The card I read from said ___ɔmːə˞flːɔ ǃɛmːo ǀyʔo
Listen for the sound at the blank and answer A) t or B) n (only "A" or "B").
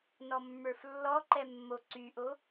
B